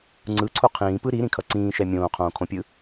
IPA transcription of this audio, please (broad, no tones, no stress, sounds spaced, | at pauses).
ŋ͡ǀ ɯ ǀʰ u qʰ ĩː p ɯ ɾ i ɾ ĩ kʰ ʌ ǀ ĩː ʃ ɛ mʲ õː qʰ õː kʰ õ pʲ ɯ